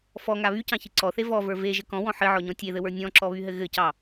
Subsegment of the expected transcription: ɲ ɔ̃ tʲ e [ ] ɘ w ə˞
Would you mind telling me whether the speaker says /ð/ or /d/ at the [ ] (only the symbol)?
ð